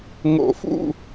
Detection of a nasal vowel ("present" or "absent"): absent